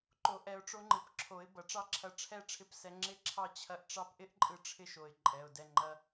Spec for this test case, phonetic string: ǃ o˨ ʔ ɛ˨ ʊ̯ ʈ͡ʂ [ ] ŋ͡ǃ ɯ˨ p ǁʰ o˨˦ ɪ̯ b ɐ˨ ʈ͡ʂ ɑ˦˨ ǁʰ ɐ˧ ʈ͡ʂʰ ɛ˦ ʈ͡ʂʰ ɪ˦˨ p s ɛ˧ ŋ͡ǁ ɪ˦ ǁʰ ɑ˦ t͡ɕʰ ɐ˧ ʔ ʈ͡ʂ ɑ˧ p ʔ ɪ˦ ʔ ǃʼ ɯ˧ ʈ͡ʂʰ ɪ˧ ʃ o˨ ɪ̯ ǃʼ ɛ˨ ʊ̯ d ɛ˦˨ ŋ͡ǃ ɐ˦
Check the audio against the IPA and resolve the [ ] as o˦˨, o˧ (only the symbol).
o˧